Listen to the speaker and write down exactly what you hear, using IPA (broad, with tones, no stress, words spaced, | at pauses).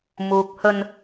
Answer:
muː˨k̚hɵ˧n